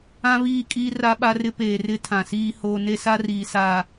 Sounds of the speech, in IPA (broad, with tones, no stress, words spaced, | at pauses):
ã˦βiː˦˨kʼiː˦ ra˦ɓa˦rɪ˦ peː˨rɪ˦ tʰã˨siː˦hoː˦ ne˦sa˦riː˨saː˨